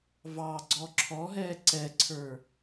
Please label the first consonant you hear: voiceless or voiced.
voiced